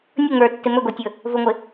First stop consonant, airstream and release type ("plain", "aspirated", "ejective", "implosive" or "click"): plain